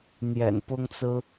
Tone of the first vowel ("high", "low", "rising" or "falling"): low